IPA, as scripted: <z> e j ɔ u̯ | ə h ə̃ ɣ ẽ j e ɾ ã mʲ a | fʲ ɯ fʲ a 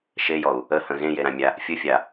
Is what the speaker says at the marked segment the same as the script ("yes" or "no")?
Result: no